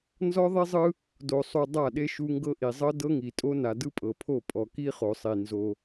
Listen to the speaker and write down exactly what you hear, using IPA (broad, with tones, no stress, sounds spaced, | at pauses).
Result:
n z ɔ˦ ðˤ i˦ zˤ ɯ˦ | d o˨ sˤ u˨ dˤ a˦˨ ɗ e˦ ʃ u˦ ŋ ɡ ɤ˦ ʔ i˨ zˤ ɤ˦ d ɤ˦ ŋ i˨ tʼ o˦ n a˨ d ɯ˦ pʼ ɤ˨ pʰ o˦˨ pʼ ɔ˨ k i˦ χ o˨ sˤ i˨ n z o˦